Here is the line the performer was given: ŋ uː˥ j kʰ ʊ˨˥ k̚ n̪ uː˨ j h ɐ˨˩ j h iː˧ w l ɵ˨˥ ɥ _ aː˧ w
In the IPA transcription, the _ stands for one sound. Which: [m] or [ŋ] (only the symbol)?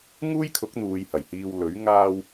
ŋ